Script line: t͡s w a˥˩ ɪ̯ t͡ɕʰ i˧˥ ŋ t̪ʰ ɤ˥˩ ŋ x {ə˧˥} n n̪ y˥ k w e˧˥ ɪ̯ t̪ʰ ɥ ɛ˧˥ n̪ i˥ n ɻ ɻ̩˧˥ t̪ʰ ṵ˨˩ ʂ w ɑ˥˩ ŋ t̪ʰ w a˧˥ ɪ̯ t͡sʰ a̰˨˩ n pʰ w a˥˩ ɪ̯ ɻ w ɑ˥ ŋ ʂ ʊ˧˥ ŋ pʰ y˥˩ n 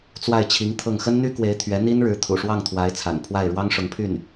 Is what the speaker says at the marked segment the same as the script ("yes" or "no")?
no